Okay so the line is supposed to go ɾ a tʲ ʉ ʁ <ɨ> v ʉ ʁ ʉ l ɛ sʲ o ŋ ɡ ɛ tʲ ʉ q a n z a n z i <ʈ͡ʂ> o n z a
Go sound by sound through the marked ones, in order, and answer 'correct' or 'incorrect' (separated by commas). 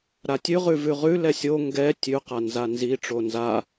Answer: incorrect, correct